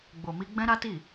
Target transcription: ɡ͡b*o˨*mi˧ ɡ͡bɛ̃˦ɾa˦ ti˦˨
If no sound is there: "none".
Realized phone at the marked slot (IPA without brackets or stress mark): o˨